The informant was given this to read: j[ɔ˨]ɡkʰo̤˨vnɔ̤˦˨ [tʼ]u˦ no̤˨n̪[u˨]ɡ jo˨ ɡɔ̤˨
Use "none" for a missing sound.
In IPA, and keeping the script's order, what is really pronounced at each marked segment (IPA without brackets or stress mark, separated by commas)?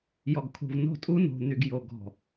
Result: ɔ˨, tʼ, y˨